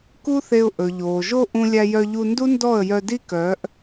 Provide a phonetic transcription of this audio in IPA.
ku˦θe˧ʊ̯ ʔɵ˨ ʎoː˨ʒo˦ ʔũ˧lʲæ˧jœ˧ʎu˧ ndu˦ndɔ˦˨ə̯ jœ˧di˦kœː˨˦ʔ

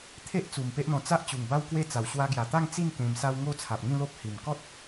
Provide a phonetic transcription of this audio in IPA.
t̪ʰe˦ʔt͡su˨˩m pe˦ʔn̪ɔ̃˧ t͡sa˦ʔ t͡ɕu˨˩ŋba˦wkwe˦t͡sa˨˩w ɕwa˧ɡja˨˩t̪a˥˧ŋ t͡si˥˧n kẽ˧msa˦w ŋo˥˧t͡sʰa˨p̚ŋĩ˥˧lo˦p̚ hi˨˩m kɔ˦t̚

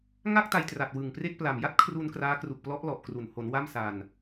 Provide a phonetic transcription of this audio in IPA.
ŋa˥˩k̚ta˧jtra˨˩t̚ wɯ˨˩ŋpre˥˩k̚ pla˨˩mja˥˩t̚kʰru˧n kraː˦˥kru˨˩k̚plɔ˦˥ʔlɔ˨˩ʔ kru˨˩n ho˩˦n wa˥˩msa˧n

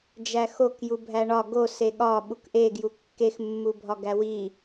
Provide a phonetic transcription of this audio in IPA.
d͡ʒæxok jubʱæɳɒ ɡose ɠɒ ɓukʔeɡju kːexmːubʱɒ ɡæwi

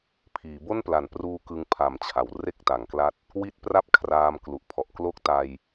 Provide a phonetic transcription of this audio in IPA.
pʰiː˩˦bo˥˩npla˨˩n pruː˦˥ kɯ˦˥ŋpʰa˨˩mt͡ɕʰa˩˦w re˥˩k̚ta˩˦ŋkla˦˥t̚ | wi˦˥t̚ pra˥˩p̚kʰraː˧mklu˨˩ʔpʰɔ˨˩ʔ klo˦˥k̚ta˧j

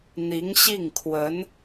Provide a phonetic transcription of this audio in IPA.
n̪i˧˥ŋɕi˥˩ŋkʰwə˧˥n

